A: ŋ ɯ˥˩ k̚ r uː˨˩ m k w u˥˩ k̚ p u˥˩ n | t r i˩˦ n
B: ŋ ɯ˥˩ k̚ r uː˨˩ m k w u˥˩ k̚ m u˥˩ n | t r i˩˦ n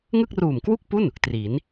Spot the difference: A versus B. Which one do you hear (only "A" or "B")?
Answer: A